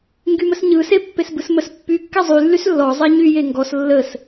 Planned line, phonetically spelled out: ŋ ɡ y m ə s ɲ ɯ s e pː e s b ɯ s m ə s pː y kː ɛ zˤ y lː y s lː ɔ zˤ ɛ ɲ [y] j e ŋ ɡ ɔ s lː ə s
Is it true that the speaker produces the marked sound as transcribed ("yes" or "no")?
yes